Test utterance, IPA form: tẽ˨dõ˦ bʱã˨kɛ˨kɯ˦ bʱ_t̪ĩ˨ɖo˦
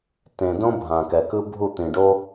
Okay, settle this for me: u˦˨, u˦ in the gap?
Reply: u˦˨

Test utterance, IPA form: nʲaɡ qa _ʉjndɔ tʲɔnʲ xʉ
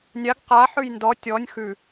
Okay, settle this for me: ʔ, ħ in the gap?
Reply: ħ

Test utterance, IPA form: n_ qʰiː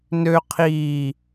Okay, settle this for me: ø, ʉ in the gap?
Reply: ø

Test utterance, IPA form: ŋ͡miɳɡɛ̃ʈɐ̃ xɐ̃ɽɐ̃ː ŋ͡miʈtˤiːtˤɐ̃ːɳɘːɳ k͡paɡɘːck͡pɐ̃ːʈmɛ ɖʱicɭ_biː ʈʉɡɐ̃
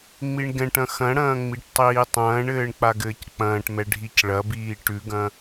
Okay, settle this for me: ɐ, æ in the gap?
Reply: ɐ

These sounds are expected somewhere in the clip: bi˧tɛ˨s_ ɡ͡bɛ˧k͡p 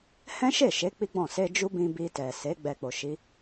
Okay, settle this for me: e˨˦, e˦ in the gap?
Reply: e˨˦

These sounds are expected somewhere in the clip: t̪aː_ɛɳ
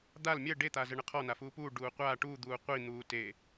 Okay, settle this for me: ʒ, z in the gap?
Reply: z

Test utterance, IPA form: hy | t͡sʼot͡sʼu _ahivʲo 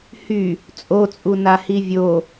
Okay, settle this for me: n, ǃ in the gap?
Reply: n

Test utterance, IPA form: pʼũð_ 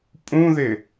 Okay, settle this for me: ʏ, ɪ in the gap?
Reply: ɪ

